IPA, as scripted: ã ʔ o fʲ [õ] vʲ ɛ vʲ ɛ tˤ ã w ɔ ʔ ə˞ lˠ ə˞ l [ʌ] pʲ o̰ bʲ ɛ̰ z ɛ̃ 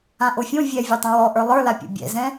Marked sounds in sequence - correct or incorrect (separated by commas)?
correct, incorrect